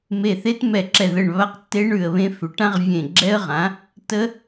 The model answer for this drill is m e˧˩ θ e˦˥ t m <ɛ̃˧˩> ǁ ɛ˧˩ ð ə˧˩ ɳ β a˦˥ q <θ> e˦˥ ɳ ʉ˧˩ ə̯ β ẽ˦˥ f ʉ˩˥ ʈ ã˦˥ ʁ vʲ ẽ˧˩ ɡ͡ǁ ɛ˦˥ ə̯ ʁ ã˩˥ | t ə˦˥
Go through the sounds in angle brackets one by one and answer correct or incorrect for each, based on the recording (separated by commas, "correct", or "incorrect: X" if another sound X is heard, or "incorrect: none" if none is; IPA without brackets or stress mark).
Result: incorrect: ɛ˧˩, incorrect: tː